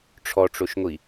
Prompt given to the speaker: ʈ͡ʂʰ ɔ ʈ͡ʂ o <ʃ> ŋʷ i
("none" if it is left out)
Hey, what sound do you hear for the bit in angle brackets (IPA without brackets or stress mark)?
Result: ʃ